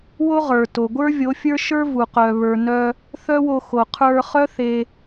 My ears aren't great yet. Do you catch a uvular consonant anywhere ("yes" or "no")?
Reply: yes